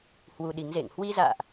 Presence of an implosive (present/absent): present